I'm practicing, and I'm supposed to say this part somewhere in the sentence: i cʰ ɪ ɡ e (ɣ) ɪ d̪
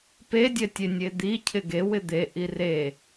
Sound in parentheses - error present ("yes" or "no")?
yes